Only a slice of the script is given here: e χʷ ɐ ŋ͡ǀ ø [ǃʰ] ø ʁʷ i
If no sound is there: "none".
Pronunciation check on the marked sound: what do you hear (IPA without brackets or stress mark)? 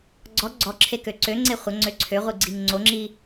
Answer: ǀʰ